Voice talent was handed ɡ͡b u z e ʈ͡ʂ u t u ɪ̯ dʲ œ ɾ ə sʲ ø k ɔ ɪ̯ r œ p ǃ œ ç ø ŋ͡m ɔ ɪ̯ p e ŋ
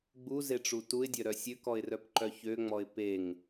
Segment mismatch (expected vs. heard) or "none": ə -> œ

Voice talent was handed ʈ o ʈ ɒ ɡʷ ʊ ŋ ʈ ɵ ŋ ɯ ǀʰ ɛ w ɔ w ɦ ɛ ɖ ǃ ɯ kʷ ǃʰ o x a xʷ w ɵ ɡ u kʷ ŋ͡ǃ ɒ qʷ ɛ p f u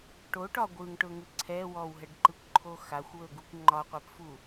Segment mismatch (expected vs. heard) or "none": ʊ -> ɯ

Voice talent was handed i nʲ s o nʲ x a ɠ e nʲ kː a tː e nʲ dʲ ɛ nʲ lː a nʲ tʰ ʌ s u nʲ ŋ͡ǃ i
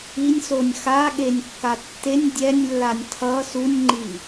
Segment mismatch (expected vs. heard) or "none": none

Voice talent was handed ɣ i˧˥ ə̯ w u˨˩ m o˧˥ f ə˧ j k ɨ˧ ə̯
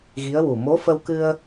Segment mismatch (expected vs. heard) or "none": j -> w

